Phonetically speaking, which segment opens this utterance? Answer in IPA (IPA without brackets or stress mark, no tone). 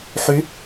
ħ